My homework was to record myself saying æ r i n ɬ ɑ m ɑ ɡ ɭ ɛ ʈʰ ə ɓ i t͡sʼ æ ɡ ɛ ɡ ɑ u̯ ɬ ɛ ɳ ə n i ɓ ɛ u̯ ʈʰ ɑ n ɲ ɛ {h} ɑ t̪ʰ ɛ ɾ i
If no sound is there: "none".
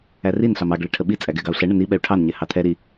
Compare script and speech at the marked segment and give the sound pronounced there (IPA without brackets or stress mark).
h